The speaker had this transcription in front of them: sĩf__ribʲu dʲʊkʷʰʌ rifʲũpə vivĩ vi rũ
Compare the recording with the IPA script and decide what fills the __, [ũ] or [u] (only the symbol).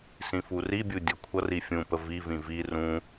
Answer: u